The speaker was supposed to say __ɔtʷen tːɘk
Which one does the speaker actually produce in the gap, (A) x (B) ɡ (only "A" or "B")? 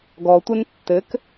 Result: B